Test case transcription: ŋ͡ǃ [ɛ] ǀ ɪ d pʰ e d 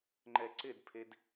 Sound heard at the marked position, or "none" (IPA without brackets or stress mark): ɛ